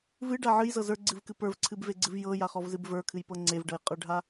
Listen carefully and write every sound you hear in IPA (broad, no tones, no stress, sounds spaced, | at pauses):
v ɨ ɖ a ʕ ɨ j z ɤ z ə˞ ɡ͡ǀ ɨ v k ɨ p ə˞ v ǀʰ ɨ b v e ɡ͡ǀ ɨ v j ɤ j a χ ɔ v z ɨ b v ə˞ kʰ ɨ j p ɤ ŋ͡ǀ e v ɖ ɤ j qʼ ə˞ ɖʱ a